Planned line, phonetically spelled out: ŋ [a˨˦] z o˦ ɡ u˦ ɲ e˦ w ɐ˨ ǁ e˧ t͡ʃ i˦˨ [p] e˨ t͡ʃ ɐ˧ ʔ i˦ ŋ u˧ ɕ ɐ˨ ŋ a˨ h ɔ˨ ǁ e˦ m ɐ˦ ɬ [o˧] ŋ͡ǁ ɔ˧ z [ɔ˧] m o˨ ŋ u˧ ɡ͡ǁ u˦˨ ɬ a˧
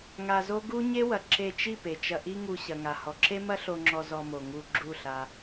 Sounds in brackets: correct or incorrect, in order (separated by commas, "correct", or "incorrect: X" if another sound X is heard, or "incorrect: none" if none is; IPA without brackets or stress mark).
incorrect: a˧, correct, correct, correct